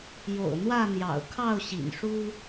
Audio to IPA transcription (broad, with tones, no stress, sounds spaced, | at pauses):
j o̰˨˩ ʊ̯ n̪ w ä˥˨ n̪ j ɑ̰˨˩ ʊ̯ kʰ ɑ˥˨ ʊ̯ ɕ ḭ˨˩ n ʂ u˦